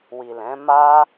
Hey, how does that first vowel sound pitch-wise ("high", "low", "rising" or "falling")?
low